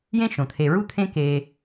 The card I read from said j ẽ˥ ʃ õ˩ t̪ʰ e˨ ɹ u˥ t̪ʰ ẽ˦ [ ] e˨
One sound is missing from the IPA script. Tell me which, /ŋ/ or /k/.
k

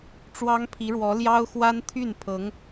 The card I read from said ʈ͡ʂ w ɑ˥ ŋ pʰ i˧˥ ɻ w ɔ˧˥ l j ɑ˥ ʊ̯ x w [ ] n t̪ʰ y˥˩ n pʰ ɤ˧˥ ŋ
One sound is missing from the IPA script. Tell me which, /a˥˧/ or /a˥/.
a˥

